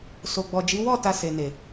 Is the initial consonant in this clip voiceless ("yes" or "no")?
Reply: yes